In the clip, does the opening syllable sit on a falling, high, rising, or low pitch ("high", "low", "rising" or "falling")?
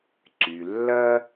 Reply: low